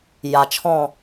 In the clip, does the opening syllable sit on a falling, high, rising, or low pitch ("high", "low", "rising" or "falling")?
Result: low